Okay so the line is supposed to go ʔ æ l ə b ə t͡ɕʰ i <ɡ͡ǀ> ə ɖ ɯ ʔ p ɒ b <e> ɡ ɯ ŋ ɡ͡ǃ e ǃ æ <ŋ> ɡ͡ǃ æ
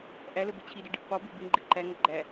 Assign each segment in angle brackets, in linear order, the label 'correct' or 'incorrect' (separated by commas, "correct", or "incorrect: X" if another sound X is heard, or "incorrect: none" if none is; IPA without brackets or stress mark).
incorrect: d, correct, correct